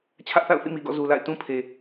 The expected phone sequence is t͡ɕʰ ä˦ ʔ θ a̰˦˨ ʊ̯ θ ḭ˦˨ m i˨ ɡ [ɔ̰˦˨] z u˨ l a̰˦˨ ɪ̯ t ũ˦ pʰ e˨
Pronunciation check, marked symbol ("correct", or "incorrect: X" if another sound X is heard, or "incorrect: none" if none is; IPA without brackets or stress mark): correct